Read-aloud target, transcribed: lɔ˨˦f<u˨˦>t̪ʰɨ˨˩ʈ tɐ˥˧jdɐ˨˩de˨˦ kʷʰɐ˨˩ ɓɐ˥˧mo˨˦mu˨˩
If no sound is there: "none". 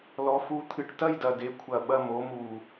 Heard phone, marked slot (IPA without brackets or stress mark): u˨˦